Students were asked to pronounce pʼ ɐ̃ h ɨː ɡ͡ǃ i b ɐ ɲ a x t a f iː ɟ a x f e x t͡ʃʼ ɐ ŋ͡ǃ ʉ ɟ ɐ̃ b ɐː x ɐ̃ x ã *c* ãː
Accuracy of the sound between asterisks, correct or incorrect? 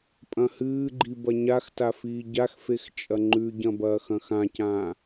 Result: correct